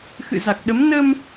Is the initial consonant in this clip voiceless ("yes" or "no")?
yes